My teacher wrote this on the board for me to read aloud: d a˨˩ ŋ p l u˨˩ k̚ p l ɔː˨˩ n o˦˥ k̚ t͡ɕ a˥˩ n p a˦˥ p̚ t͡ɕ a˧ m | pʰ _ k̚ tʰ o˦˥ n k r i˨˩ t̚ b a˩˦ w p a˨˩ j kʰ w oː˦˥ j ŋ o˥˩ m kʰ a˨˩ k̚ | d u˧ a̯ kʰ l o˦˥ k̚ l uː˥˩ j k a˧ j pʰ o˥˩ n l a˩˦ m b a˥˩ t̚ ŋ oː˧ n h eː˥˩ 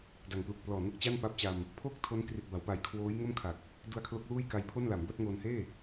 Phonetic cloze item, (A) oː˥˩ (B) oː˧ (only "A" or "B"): A